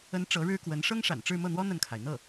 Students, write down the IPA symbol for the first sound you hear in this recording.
ə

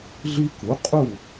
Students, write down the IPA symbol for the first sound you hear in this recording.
ɮ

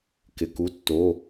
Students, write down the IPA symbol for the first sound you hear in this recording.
k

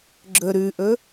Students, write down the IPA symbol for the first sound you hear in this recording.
ɡ͡ǁ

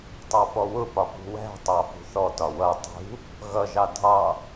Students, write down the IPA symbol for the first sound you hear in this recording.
tˤ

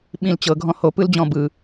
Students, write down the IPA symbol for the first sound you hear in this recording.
ɓ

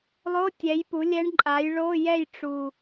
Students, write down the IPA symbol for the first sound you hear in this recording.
lˠ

